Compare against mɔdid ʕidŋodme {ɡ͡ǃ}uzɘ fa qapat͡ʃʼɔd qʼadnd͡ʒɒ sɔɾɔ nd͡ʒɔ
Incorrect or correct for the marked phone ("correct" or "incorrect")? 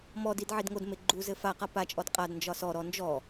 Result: correct